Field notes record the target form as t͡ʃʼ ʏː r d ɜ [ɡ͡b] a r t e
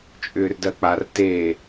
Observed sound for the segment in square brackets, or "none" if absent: k͡p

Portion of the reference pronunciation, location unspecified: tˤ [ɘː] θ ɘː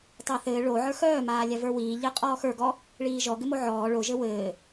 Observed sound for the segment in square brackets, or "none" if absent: ɘː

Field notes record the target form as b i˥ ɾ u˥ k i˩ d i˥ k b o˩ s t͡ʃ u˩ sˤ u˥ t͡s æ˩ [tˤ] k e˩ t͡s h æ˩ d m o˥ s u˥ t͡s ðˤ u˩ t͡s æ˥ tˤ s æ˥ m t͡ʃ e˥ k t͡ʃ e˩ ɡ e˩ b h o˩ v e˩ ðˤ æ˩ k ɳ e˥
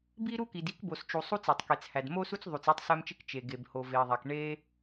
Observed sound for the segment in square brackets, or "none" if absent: tˤ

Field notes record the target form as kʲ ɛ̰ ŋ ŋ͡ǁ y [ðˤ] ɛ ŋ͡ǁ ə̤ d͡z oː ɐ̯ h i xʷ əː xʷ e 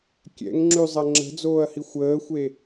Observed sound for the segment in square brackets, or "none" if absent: zˤ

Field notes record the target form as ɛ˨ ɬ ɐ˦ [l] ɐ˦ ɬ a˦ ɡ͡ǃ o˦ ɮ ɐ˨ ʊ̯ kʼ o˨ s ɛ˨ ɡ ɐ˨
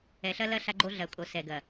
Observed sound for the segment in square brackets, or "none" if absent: l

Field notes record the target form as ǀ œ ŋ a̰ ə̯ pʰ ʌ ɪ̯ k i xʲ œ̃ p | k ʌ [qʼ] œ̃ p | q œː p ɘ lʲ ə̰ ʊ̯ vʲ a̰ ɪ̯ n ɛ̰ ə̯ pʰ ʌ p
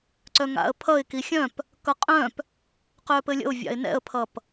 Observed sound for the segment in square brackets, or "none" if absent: qʼ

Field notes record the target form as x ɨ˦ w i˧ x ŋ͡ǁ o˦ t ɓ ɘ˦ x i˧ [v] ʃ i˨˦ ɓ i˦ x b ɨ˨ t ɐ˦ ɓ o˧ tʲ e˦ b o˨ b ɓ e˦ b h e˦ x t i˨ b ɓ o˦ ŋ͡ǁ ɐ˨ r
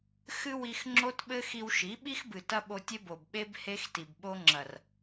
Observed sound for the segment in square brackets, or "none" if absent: w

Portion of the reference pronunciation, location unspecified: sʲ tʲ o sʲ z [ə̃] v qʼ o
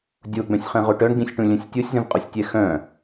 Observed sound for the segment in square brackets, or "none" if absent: ə̃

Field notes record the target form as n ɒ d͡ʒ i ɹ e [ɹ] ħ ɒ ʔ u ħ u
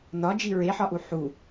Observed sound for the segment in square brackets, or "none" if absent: none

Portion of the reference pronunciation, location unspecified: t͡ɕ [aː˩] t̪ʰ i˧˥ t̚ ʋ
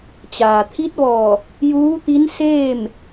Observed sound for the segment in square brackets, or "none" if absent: aː˩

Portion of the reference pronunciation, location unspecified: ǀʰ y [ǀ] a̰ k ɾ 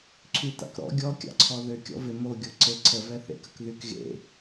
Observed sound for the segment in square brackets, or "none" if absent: t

